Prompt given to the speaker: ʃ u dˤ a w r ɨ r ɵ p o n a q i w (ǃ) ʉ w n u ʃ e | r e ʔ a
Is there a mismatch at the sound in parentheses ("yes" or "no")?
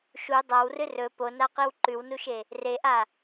no